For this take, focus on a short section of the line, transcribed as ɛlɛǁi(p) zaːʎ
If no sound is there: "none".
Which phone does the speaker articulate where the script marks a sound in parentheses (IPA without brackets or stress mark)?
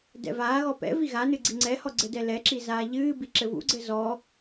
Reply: none